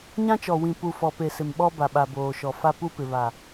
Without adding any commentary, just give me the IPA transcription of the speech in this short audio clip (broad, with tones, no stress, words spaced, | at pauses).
ɲã˦t͡ʃɔ˨ wĩ˨pu˨ fɔ˨pe˨ sɪ˨mɓɔ˦ba˨ ɓa˨boː˨ʃɔ˨ fa˦pu˦pɪ˨ βa˨